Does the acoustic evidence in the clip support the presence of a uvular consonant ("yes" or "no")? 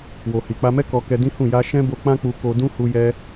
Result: no